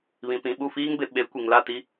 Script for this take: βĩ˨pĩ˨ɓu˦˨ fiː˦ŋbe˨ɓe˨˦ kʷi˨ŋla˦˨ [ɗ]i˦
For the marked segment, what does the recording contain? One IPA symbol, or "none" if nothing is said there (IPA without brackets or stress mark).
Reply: t